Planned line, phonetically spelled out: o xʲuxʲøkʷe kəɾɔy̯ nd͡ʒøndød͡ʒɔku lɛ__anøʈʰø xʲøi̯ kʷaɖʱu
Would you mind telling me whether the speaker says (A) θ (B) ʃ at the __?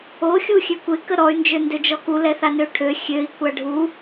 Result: A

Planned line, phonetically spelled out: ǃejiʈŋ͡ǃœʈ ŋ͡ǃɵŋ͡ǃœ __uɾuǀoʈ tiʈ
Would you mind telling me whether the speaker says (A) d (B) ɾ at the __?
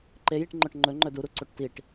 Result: A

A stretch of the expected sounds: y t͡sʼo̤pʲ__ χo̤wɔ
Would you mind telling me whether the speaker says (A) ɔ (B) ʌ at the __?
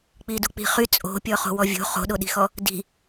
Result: A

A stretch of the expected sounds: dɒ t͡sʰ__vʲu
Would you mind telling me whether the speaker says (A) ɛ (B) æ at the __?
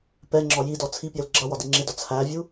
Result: B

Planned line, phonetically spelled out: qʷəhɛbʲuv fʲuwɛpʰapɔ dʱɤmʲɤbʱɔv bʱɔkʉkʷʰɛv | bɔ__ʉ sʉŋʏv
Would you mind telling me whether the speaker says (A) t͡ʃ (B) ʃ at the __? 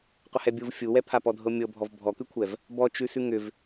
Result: A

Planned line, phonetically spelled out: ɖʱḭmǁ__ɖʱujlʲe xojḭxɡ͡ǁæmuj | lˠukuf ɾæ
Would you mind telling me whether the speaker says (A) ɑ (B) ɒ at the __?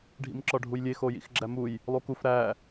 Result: B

